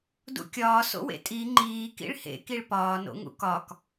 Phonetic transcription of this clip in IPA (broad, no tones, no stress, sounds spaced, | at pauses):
d ṵ kʲ ɒː s o̰ w ḛ tʼ i ŋ͡ǃ iː k ḭ ɭ h ḛ k i ɭ p ɒː n o̰ ŋ ṵ k ɒ k